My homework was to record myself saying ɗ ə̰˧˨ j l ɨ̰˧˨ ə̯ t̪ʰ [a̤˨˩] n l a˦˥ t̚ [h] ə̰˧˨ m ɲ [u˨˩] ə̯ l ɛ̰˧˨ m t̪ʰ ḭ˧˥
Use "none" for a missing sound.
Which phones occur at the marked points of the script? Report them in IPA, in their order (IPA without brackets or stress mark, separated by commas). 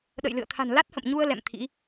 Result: a̤˨˩, h, u˧